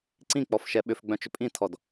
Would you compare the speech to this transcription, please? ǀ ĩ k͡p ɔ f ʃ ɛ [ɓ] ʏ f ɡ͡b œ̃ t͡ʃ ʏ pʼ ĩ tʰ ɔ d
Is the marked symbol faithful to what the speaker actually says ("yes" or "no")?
yes